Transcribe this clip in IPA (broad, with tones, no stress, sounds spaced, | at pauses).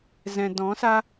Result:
z ɛ̃˨ d ɔ̃˨˦ s a˦